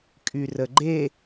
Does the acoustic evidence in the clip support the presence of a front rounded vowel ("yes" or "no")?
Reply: yes